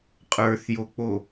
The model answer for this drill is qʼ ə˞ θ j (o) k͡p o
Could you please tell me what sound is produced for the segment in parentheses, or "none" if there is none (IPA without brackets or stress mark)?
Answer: o